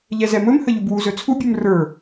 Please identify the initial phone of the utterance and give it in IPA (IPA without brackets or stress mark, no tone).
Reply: ʎ